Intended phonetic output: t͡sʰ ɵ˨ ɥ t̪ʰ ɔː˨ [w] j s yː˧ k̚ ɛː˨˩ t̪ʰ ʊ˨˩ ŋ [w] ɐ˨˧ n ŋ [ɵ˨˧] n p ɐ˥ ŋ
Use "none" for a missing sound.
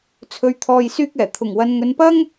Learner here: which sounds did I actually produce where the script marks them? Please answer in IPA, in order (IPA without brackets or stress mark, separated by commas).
none, w, ɵ˨˧